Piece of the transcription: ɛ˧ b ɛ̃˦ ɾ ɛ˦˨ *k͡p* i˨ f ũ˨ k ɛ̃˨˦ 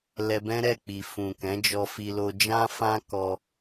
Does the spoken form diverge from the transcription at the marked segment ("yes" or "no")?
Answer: no